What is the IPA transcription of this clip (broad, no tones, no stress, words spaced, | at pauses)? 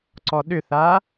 ǀɔɗʏθa